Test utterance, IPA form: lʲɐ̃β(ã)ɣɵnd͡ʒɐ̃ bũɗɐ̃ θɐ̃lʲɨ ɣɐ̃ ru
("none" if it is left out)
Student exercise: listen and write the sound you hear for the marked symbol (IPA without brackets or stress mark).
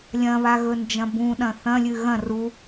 a